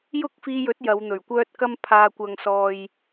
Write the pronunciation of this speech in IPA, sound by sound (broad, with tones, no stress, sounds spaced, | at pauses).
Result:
j ʊ˥ k̚ f iː˧ j ɵ˨˥ t̚ j ɐ˨˧ w n̪ ɵ˨˩ ɥ kʷ œː˥ t̚ k ɐ˥ m pʰ aː˨ kʷ ɐ˨ ŋ s ɔː˨ j